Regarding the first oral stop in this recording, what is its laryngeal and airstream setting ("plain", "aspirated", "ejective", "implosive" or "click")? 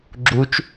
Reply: click